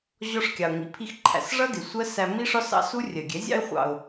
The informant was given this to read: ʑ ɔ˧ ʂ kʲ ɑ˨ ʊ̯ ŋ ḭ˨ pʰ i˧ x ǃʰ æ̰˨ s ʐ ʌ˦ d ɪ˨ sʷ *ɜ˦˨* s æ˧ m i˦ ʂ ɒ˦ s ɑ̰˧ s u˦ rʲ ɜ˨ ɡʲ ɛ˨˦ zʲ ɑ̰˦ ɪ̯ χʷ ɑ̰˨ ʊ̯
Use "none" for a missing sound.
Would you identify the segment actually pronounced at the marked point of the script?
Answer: ɜ˦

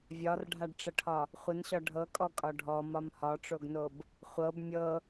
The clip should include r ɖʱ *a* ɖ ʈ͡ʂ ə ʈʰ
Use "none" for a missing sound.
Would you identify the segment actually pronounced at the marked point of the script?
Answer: a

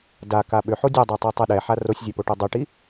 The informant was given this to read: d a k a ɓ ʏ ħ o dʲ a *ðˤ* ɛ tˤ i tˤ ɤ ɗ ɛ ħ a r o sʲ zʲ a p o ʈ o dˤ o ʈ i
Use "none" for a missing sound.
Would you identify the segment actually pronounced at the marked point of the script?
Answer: dˤ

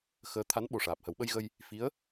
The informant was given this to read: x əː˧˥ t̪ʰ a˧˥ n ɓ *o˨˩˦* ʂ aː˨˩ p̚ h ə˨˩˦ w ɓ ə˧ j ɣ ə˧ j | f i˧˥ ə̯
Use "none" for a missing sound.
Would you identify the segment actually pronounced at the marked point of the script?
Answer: o˨˩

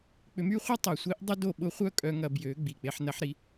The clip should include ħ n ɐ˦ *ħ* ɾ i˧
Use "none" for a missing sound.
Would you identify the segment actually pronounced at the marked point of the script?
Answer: ħ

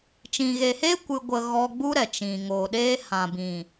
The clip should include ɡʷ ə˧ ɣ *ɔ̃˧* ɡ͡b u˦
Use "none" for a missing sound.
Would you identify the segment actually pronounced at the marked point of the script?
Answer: ɔ˧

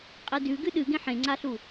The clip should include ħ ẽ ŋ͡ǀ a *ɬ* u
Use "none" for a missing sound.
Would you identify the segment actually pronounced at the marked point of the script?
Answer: ɬ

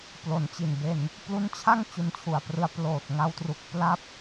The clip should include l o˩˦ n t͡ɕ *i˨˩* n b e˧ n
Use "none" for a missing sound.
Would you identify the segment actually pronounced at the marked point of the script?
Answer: i˨˩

